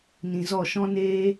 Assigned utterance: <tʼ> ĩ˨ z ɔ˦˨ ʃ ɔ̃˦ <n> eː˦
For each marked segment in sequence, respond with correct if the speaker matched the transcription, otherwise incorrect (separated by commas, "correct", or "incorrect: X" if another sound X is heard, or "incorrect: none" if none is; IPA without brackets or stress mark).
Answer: incorrect: n, correct